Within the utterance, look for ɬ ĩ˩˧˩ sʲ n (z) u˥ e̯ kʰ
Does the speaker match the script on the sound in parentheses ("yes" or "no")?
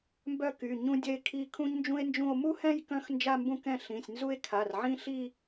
yes